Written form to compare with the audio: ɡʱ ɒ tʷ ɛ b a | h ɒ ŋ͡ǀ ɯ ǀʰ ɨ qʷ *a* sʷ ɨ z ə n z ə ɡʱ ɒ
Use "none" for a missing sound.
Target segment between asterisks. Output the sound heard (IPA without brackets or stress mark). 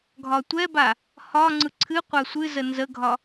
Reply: a